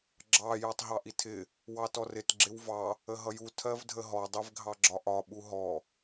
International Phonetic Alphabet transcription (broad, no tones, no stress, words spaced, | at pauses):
ɡ͡ǁɑ jɜtˤɦɑʔitʰɪ | wɑtɔrɪt ɡ͡ǁɪwvɑ | əɦʌju tʰɜvdʱəɦɔ dˤivɡʱɑɡ͡ǁɒʔɒ ɓuɦɔ